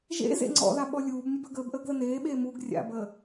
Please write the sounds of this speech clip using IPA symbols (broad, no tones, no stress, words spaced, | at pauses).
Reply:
ʒḛ zḛŋ͡ǀɔ̰ða ɓɔlʲuːbnʲəb əɡəːb ʔəːɡðəneːɓeː muɡ rʲa̰bəː